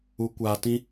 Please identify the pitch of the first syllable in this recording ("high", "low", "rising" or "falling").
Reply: rising